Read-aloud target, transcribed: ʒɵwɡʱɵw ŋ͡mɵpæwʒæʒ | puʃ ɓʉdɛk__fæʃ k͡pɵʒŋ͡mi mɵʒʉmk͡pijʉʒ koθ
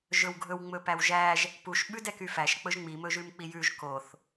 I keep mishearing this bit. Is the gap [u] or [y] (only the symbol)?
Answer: y